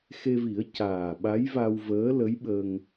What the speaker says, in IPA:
x e˧ v i˨˩˦ ə̯ c aː˨˩ ɓ a˧˥ j v a˧ w v əː˧˥ l ə˧˥ j ɓ ə˧ ŋ

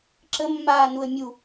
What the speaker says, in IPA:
ǁ ə mː aː n u ə̯ mʲ u

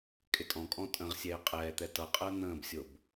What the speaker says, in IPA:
kʼ ɪ tʼ ɔ̃ kʼ ɔ̃ tʼ ə̃ ʁ sʲ ɛː qʼ ɛː t̪ ɛ t ʌ qʼ əː n̪ ə̃ː b sʲ o b

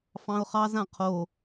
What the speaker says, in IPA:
f ɑ̃ ʊ̯ χ ɑ z ã qʰ o

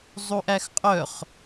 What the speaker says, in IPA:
zˤ u ʔ æ x qʼ œ χ

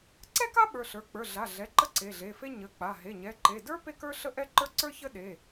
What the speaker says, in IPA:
ǀ ɛ˥ k a˥ ɓ ə˞˩˧˩ ɬ ə˞˩˧˩ k͡p ə˞˩˧˩ ɮ a˩˧˩ ɮ ɛ˩˧˩ ǃ ə˥ ǀ e˩˧˩ ɮ e˩˧˩ f e˥ ɲ ə˩˧˩ k͡p a˩˧˩ ɦ e˩˧˩ ɲ ɛ˩˧˩ ǃ e˩˧˩ d ə˞˥ p e˥ k ə˞˥ ɬ ə˥ ʔ ɛ˥ ǃ ə˞˥ ǀ ə˞˥ ç ə˥ ɗ e˩˧˩

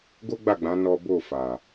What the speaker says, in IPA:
ɡ o˦ ɡ͡b a˦˨ ɡ͡b ã˨˦ n ɔ˦ b o˦˨ f a˨

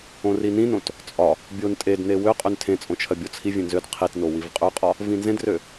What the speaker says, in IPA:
õ r i n ĩ n õ t | t͡sʼ ɒ | bʲ o n tʼ e d n e w ø qʼ ø n tʰ ẽ t͡sʼ õ t͡ʃʰ ɜ bʲ o t͡sʰ i vʲ ẽ n z ø d qʰ i t n o w i v qʼ ø qʼ ɒ | v ĩ n z ẽ d r ø

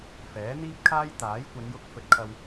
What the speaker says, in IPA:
f ɛː˨˥ n̪ iː˥ p̚ kʰ aː˥ j t̪ aː˨˥ j kʷ ɐ˨˧ n j ʊ˧ k̚ f ɵ˧ t̚ kʰ ɐ˧ w

